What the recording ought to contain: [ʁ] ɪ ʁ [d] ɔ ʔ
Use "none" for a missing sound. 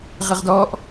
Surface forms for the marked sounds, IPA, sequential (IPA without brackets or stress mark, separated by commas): ʁ, d